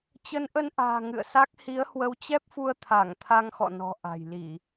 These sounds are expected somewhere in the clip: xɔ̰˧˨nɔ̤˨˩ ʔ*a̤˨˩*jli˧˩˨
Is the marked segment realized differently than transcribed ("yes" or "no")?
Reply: no